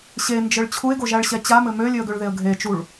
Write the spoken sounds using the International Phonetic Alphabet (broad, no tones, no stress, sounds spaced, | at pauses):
ɕ e n d͡ʒ ɘ ɭ t͡ɕʰ u ɪ̯ ɡ o ʒ æ ɭ ɕ ɛ t͡ɕ a m ɘ m ø lʲ ø ə̯ ɡ ø ɭ ð e ə̯ ɡʱ e t͡ʃ u ɭ